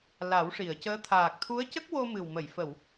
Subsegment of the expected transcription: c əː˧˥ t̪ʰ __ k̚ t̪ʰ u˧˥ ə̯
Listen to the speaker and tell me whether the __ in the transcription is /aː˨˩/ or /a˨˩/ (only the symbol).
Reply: aː˨˩